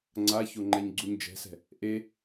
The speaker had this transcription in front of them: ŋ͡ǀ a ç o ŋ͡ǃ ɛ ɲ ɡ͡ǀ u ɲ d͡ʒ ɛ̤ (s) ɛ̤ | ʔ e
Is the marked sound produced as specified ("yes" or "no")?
yes